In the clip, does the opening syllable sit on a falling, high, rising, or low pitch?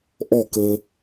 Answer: falling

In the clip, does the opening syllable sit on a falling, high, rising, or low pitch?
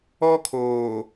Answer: high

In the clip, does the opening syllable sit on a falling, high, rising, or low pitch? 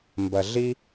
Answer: low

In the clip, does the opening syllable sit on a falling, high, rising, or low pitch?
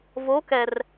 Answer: rising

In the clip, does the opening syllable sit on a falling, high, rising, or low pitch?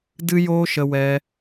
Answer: high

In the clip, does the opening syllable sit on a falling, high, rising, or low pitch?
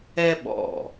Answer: high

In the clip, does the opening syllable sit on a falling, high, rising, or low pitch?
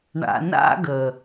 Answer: low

